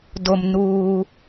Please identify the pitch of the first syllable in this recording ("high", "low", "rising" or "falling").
low